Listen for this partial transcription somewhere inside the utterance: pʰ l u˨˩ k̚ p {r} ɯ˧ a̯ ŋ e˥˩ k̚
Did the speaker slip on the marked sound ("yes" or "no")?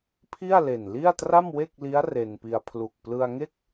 yes